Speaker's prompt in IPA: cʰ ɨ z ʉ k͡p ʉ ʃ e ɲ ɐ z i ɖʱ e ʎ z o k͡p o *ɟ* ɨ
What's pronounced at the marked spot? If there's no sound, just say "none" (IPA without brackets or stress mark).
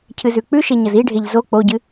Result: ɟ